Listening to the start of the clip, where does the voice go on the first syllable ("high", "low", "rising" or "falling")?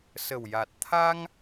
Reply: low